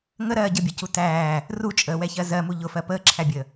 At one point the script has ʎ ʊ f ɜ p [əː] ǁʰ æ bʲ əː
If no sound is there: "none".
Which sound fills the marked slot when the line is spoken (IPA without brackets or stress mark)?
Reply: əː